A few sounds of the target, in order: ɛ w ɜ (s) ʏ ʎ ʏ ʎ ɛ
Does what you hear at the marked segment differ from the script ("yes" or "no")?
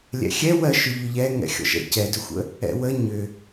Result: yes